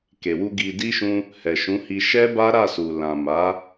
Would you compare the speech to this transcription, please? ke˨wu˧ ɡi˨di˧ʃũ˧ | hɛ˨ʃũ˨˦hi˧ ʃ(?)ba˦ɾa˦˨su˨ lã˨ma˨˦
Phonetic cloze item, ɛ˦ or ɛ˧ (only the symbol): ɛ˦